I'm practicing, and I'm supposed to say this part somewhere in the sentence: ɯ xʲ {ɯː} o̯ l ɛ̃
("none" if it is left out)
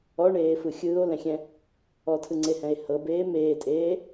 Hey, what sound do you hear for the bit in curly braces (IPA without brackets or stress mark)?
ɯː